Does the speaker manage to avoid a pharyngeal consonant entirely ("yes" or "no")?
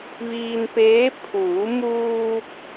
yes